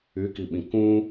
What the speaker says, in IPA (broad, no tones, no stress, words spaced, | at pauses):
ykiɓĩ kũ